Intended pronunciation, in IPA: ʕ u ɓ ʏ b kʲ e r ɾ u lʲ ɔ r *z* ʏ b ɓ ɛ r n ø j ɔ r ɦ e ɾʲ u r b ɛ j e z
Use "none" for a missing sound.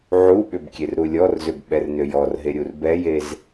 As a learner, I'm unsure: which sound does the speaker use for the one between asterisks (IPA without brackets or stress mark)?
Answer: z